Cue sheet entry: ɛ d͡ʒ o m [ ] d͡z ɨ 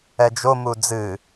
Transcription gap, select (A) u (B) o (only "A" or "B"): A